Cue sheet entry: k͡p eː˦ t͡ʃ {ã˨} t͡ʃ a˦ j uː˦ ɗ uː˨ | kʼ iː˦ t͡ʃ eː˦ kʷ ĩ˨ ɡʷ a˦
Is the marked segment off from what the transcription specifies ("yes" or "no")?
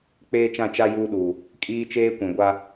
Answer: yes